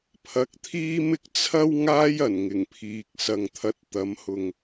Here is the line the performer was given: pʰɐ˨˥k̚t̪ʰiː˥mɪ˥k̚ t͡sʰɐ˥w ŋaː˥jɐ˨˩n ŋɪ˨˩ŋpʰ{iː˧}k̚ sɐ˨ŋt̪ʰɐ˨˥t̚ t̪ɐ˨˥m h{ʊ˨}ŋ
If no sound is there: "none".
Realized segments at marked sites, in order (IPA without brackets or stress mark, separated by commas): iː˨, ʊ˨